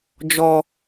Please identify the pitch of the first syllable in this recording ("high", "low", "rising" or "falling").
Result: low